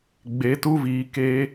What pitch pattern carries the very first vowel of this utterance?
rising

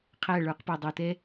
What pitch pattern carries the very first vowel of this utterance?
falling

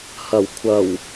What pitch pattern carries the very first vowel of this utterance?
low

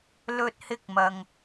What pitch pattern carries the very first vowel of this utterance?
high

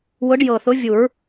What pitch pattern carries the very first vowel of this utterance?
rising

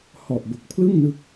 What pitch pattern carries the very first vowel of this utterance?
low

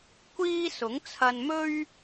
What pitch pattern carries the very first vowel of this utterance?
high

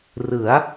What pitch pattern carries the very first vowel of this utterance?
rising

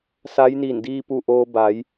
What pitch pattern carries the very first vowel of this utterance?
rising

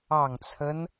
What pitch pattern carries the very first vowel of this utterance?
low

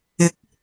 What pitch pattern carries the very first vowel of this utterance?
rising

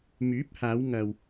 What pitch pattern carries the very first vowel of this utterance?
rising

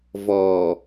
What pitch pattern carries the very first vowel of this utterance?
low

